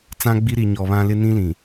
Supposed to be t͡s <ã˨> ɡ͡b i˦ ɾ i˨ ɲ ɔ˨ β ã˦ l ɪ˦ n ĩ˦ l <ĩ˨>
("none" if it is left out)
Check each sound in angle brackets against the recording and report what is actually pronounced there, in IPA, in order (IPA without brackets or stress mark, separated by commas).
ã˦, ĩ˨